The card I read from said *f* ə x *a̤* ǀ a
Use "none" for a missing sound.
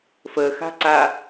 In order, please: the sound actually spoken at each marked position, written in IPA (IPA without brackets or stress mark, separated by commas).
f, a̤